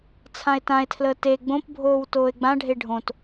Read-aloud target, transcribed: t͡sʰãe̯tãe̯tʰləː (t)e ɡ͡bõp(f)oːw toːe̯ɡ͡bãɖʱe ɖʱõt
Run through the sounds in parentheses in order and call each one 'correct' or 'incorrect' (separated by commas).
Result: correct, incorrect